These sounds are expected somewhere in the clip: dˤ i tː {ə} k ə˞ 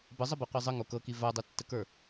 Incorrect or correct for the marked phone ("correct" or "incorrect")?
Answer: correct